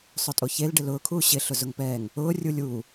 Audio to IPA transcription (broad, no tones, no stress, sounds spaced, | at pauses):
sˤ ʊ tʼ o ç e l ɖ ɪ l ʊː kʰ uː ɕ ɪ ɬ ʊ z ʊ ŋ p ɛː ŋ | ʊː rʲ u lʲ uː